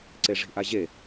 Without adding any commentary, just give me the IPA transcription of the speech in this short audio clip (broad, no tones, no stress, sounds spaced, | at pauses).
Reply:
ǀ e ʐ i̤ ʔ a ʑ e